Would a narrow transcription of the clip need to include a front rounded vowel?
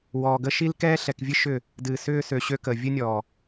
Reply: yes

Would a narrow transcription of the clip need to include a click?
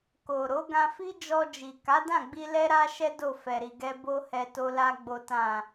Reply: no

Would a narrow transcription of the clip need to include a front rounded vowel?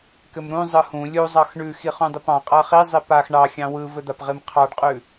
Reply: no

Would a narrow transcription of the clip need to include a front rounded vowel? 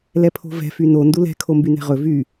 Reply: yes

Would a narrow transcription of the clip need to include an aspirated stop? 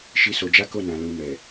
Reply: no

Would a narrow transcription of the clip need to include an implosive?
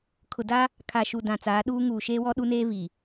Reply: yes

